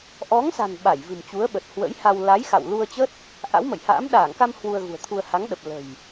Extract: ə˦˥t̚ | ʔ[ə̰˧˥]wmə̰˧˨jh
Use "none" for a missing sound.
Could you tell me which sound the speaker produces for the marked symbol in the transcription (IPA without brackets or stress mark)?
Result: a̰˧˥